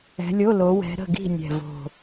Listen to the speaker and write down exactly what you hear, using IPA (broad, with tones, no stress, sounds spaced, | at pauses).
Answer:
ɛ̤˨˦ lʲ o˧˥˧ l o˨˦ w ɛ̤˨˦ ɾ ə̤˥˨ ɡ i̤˥˨ nʲ ɛ̤˨˩ v o̤˨˩